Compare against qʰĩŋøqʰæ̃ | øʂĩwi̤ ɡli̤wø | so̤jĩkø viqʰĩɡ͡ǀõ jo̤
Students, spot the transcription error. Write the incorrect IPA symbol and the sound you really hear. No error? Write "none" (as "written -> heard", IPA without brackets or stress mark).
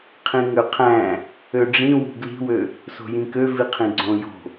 ʂ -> ɖ͡ʐ